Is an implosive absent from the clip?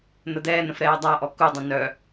yes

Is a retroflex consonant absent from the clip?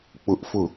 yes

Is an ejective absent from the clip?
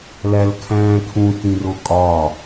no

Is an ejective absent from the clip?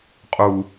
no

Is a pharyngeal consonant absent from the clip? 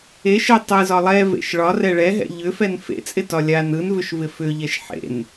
no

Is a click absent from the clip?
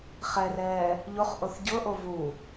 yes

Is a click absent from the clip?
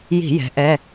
yes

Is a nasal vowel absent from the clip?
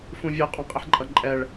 no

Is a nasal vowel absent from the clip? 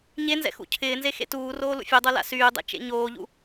yes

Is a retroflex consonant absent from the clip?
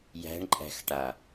no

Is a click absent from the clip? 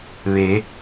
yes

